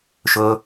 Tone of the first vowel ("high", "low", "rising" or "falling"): high